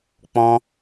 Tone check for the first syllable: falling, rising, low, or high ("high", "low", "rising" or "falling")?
high